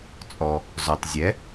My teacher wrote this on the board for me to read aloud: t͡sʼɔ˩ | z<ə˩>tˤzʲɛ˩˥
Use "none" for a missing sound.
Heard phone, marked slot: ɔ˩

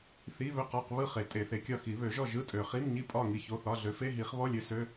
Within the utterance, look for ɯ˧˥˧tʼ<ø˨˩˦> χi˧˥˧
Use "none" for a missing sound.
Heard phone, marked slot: ø˨˩˦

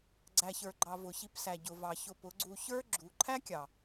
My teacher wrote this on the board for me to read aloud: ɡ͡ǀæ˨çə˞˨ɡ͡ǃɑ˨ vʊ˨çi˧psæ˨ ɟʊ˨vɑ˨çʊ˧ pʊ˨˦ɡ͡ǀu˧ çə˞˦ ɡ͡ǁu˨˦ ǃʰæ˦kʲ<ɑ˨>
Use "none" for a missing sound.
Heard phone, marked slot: ɑ˨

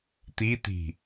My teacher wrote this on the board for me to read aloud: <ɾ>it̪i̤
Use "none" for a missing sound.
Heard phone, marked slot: t̪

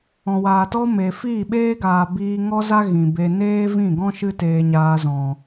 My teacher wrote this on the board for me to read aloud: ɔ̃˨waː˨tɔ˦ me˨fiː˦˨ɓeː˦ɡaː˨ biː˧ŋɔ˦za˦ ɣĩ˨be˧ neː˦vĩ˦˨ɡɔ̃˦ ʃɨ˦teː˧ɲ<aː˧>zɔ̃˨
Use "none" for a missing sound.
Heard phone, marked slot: aː˧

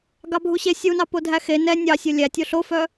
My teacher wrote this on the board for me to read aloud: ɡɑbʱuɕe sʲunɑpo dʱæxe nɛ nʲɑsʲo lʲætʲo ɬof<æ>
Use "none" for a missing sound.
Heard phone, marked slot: œ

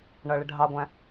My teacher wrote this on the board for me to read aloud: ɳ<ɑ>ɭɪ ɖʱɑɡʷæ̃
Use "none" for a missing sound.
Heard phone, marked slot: ʌ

